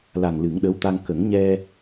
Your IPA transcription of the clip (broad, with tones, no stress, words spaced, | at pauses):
la˨˩ŋlɨ˨˩˦ŋɗə˧˥wt̪a˧ŋ kə˨˩˦ŋɲɛ˧